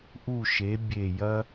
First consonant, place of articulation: glottal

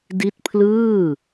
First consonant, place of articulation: alveolar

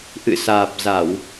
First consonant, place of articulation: glottal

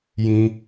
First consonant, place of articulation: palatal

